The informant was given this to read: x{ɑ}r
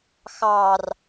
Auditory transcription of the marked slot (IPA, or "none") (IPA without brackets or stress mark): ɑ